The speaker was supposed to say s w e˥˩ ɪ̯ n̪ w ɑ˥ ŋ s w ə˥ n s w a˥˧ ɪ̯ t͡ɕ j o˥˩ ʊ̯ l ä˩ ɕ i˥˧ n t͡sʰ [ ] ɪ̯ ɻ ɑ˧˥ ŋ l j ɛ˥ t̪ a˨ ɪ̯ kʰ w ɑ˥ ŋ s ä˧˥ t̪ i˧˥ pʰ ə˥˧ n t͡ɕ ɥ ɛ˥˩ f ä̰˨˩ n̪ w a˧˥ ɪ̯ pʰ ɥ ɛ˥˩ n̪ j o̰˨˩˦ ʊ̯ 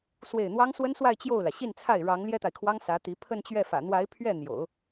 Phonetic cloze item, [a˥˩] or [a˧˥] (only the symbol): a˥˩